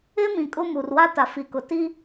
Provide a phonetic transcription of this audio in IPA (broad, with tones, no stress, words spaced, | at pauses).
ɪ˦mĩ˨ kʼʊ˦mu˨r wa˦ta˨fi˨kʊ˨ ti˦